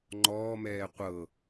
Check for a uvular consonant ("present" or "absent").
present